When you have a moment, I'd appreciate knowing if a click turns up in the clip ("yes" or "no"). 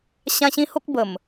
no